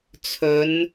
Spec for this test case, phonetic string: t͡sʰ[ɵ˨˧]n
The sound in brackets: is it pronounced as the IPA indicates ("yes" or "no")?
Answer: yes